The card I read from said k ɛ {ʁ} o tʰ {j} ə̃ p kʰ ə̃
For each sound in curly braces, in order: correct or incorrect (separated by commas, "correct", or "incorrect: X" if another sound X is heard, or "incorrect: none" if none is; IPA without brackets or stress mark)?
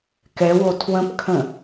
incorrect: w, incorrect: w